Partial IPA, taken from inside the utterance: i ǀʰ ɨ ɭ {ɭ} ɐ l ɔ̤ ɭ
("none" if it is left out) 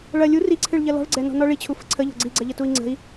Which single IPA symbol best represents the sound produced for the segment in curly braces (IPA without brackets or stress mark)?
ʎ